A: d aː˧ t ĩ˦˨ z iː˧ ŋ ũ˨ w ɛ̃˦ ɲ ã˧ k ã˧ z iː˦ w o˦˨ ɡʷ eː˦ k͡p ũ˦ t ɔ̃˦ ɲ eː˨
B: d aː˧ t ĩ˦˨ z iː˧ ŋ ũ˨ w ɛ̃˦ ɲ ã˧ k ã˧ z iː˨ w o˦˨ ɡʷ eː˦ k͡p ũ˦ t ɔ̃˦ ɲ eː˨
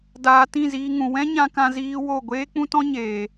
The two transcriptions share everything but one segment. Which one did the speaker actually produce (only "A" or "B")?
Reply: A